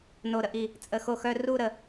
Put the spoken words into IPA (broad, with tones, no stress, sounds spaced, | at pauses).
n o˧˩ ɾ ə˧ ʔ i˧˩ | t͡sʼ ə˧˩ x o˧ x œ˧ r u˥˧ ɾ ə˧˩